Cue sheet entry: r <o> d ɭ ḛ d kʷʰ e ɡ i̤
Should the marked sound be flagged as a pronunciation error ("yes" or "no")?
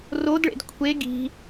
no